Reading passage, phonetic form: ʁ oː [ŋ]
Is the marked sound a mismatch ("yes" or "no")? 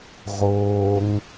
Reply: no